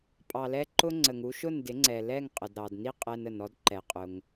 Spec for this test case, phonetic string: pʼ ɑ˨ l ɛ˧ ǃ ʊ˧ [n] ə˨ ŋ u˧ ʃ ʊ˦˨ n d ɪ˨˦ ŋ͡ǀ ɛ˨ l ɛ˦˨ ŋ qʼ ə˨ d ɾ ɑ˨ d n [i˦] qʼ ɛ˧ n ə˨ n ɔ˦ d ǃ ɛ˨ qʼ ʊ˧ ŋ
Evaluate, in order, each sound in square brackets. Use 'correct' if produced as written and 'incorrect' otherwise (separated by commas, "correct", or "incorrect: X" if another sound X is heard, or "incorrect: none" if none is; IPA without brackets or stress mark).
incorrect: ŋ͡ǀ, correct